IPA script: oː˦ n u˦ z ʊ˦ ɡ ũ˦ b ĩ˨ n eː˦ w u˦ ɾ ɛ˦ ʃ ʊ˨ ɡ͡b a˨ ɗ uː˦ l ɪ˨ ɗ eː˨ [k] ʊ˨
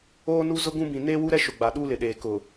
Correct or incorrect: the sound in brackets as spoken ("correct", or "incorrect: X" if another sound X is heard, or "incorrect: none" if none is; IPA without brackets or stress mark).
correct